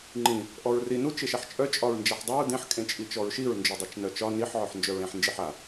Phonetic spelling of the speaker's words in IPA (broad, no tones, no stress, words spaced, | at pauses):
ŋ͡ǃĩ | ʔɔɹri nut͡ʃ eʃaħt͡ʃʼœ t͡ʃʼɒɹnd͡ʒaħdˤuɹ dẽħ kʼẽt͡ʃʼit͡ʃɔɹʃiɹ nd͡ʒodˤat͡ʃnœt͡ʃɒ niħ ʕɔħnd͡ʒœɹẽħ nd͡ʒiħa